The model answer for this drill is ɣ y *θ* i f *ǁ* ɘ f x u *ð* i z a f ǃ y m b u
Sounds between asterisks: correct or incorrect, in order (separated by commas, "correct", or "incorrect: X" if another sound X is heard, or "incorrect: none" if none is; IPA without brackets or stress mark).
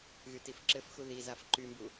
incorrect: t, correct, correct